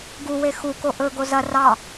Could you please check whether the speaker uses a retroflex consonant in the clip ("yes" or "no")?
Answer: no